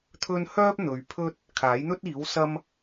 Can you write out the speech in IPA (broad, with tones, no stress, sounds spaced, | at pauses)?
t̪ʰ ɵ˥ n h œː˥ p̚ n̪ ɵ˨ ɥ pʰ ɵ˥ t̚ | kʰ aː˨˥ j n̪ ɵ˥ t̚ iː˨˥ w s ɐ˥ m